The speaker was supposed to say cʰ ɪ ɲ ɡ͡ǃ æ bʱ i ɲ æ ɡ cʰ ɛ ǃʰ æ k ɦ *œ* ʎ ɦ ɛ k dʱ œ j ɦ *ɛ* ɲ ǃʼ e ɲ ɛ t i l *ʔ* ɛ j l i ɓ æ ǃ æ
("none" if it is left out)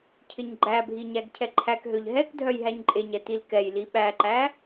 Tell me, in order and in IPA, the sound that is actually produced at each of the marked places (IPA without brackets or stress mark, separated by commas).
ø, æ, k